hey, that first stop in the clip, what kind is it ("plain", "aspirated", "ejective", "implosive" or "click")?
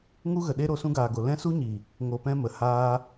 implosive